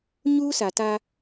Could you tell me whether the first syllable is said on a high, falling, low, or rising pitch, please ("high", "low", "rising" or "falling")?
high